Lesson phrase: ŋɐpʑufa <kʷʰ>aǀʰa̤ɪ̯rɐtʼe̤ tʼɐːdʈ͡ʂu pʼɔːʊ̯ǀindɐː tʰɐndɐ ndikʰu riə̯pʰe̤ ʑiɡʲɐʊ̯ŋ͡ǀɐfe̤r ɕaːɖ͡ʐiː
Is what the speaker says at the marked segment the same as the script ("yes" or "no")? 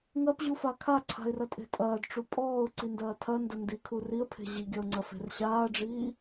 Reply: no